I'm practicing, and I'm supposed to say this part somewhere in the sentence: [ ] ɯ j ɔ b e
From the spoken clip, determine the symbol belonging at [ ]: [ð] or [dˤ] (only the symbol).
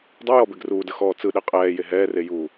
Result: dˤ